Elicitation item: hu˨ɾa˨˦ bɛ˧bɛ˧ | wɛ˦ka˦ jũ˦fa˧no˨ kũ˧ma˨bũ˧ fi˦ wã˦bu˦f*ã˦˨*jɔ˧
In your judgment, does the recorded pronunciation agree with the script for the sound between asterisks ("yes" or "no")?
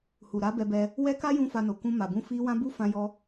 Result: no